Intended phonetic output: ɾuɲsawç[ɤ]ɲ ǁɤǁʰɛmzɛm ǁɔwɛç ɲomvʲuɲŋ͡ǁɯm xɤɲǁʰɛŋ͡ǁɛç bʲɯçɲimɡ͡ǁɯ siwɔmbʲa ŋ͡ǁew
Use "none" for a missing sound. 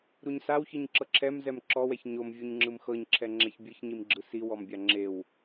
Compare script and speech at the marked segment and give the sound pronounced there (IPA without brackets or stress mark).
ɯ